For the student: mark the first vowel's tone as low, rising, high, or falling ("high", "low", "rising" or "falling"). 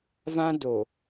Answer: high